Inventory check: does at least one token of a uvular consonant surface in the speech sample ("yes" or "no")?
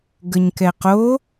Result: yes